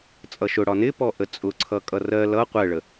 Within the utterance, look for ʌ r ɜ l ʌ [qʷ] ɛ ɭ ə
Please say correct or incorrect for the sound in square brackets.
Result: correct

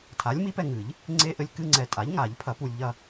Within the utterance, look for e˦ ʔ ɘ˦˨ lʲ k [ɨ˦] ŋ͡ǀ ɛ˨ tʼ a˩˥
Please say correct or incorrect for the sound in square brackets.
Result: correct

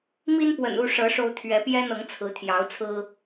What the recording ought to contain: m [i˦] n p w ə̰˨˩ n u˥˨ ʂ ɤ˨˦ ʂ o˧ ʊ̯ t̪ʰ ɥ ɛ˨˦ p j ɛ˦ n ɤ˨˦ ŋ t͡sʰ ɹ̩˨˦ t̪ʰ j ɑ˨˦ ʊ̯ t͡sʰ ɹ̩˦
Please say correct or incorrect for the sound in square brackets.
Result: correct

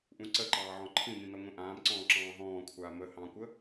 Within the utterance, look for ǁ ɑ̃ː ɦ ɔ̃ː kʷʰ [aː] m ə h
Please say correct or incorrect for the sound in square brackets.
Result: correct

